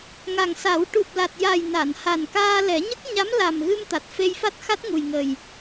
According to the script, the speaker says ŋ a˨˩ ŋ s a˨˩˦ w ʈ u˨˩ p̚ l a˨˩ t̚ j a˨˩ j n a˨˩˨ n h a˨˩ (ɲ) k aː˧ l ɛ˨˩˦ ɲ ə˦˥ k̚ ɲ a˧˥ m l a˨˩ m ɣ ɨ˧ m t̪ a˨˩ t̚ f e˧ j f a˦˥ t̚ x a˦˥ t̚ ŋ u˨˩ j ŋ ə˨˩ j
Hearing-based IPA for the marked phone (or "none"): n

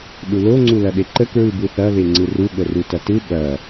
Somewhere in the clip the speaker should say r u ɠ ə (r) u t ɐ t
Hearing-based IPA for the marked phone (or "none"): r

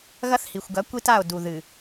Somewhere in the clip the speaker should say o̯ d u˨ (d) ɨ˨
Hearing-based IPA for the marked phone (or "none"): ð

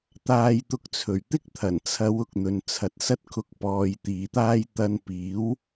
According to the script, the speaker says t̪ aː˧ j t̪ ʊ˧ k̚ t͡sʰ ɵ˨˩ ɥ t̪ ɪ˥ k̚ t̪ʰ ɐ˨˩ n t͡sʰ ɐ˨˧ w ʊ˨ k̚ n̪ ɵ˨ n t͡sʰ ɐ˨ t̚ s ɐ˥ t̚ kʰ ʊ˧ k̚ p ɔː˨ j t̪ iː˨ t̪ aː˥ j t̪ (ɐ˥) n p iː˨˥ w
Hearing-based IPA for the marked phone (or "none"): ɐ˧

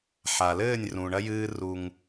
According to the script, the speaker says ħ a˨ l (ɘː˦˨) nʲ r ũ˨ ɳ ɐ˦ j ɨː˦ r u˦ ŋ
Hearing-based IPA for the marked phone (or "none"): ɘː˦˨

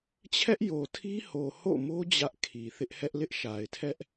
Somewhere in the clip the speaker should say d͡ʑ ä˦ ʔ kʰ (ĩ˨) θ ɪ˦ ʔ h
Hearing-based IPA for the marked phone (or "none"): i˨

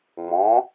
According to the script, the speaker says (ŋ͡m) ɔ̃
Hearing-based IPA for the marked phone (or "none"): ŋ͡m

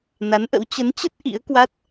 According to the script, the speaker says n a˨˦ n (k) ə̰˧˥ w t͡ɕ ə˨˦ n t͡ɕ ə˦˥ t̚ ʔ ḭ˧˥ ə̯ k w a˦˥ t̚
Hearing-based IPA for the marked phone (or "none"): ʔ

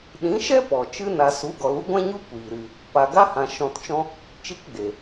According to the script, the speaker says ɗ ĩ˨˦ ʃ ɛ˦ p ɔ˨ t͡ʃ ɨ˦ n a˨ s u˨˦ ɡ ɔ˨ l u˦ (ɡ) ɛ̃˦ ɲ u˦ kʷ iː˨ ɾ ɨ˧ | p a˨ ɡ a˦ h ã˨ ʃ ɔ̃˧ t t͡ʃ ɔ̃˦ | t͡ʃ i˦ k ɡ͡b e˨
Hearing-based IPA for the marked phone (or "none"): ɡʷ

